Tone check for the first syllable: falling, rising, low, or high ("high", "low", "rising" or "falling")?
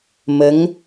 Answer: rising